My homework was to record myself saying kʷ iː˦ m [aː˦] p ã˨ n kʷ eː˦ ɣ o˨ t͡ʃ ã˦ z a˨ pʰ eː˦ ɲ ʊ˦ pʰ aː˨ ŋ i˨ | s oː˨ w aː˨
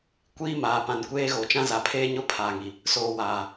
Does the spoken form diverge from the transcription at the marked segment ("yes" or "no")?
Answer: yes